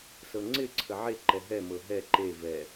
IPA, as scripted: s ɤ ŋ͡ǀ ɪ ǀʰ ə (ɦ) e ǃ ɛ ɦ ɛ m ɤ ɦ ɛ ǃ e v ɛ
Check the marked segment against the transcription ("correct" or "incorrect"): incorrect